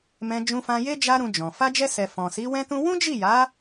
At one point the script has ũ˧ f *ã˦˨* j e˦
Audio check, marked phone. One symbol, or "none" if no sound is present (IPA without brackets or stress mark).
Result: ã˧